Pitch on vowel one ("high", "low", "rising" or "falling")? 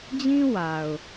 high